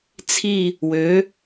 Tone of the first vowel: falling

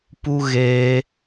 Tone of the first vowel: high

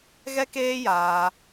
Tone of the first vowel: high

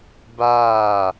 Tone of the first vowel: falling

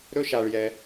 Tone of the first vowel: high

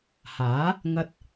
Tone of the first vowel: rising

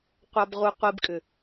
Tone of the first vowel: low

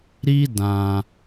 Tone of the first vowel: high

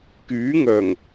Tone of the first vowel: rising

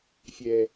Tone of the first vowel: low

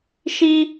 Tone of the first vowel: high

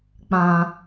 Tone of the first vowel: low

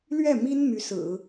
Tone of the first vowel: falling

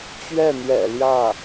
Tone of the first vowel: falling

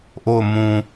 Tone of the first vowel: falling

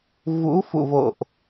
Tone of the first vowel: rising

